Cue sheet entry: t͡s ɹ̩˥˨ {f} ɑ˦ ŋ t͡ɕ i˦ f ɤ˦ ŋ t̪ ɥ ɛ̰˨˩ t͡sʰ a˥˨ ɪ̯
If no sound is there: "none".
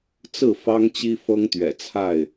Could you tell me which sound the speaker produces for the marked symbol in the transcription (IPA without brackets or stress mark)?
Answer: f